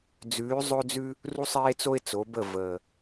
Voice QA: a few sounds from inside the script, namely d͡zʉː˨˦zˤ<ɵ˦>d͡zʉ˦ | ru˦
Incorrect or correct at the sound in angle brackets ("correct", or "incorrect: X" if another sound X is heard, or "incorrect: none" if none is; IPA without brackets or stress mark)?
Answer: correct